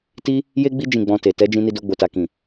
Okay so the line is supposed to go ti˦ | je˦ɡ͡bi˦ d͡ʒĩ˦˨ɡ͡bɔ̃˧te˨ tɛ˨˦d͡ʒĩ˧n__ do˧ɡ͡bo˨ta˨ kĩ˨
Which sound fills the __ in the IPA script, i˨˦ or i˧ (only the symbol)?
i˧